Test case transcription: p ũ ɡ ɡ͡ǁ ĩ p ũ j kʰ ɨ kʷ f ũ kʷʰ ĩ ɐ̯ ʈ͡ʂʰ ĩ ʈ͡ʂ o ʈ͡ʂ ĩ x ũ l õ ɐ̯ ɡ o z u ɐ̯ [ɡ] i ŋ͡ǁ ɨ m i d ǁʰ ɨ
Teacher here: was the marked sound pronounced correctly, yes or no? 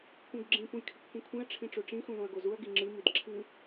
yes